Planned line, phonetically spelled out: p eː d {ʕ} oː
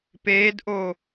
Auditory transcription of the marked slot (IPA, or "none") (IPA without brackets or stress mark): ʔ